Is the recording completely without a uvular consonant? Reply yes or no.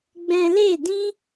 yes